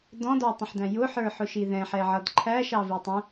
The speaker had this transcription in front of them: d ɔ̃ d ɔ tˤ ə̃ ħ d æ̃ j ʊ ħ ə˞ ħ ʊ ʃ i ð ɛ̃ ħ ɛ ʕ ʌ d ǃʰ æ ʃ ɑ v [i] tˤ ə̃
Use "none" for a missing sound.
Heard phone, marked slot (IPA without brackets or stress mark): i